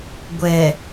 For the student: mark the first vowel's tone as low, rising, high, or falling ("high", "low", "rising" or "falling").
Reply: low